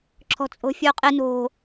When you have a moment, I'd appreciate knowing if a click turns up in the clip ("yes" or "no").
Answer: yes